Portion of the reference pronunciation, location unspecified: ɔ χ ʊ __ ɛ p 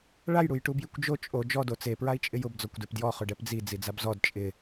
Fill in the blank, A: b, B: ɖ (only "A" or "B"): B